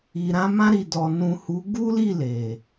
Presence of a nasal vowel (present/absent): present